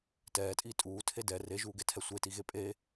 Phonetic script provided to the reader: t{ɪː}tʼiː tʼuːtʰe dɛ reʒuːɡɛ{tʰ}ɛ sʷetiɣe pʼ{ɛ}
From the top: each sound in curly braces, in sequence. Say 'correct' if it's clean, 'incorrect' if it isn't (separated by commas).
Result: incorrect, correct, incorrect